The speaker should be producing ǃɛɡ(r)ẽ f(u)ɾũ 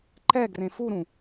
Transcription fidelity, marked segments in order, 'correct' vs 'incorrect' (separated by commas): correct, correct